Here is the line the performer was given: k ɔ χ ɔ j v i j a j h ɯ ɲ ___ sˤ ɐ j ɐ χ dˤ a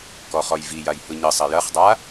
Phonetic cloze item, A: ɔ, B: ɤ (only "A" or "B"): B